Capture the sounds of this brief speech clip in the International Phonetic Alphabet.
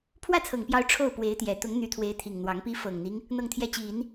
pʰwä˥˩t͡sʰɤ˨˩ŋpjɑ˧˥ʊ̯ ʈ͡ʂʰo˥˩ʊ̯pwe˧˥ɪ̯t̪jɛ˨˩ t̪ʊ˧˥ŋn̪y˧˥t̪ʰwe˧˥ɪ̯t̪ʰi˨˩ŋ n̪wɑ˧˥ŋpi˥ fɤ˨˩ŋn̪i˦ŋ | n̪ɤ˥˧ŋt̪ʰjɛ˥˩t͡ɕi˨˩˦n

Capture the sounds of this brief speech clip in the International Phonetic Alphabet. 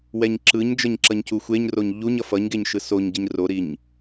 wɛɲǁɯɲd͡ʒʌɲ ǁʌɲcuxʷeɲroɲ ʎuɲʌ fʌɲɡeɲ ʃɯsoɲɟiɲ roɾiɲ

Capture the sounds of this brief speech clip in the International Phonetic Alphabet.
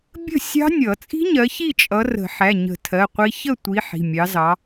bʲə̤˥˨sʲɑ̤˦˥nʲʌ˨˩˦ t͡sʼi̤˦˥ɲɜ˨˦ çi˥˨t͡ʃʼʌ˨˦ rə̤˨˩˦ħæ˩˧˩ɲə̤˨˩˦tʰɜ˩˧˩ qʷi˦˥ çə˥˨tʷi˨˦ ħi̤˩˧˩mʲɑ˨˦zɑ˨˦

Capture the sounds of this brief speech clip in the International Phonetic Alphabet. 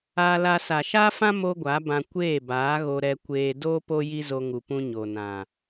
aː˧la˧ sa˨ʃaː˦fã˦ mo˦ɡʷa˨˦bã˧ kʷeː˦˨ baː˨˦ɣo˧ ɾɛ˧kʷeː˧ doː˦ po˦ji˦zo˧ ŋu˨pũ˧ ɲo˨nã˨

